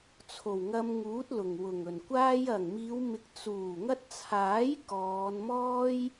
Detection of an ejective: absent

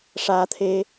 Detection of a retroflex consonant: present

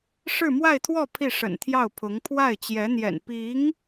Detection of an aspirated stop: present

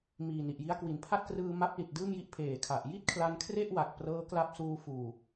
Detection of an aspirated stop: present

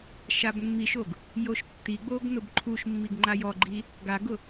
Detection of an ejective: absent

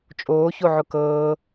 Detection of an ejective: present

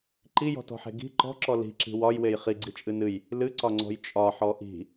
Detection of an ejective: present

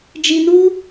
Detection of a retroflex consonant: absent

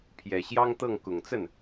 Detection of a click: absent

